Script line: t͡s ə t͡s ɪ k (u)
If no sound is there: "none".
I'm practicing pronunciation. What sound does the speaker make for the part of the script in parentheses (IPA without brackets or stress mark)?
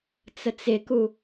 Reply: u